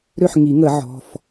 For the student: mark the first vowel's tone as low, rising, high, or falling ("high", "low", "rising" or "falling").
falling